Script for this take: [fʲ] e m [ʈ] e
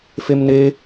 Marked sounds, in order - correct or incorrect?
incorrect, incorrect

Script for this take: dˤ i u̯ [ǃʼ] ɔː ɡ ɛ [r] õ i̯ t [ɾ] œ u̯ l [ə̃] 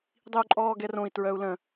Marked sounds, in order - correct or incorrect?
correct, correct, incorrect, correct

